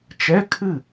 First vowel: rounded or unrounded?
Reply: unrounded